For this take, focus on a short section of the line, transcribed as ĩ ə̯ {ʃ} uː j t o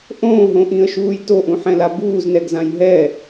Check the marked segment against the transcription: correct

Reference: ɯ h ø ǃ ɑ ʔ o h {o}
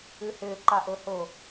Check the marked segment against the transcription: correct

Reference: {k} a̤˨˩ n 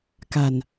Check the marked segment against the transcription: correct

